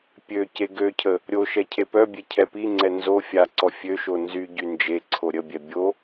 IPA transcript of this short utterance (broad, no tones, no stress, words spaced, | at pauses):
pʲø ceɡøcʰə | ɾʲoʃɛ cʰepœbʲe cʰɛpiŋ͡ǀɛ nzo fʲaǀɔ fʲøʃo nzyɟy nd͡ʒe ǀʰoɾʲəbʲɛ bʲo